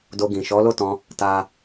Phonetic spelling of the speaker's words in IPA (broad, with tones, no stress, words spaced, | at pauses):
do˧ɡĩ˨ ʃɔ˨˦lo˦˨tɔ̃˧ | ta˦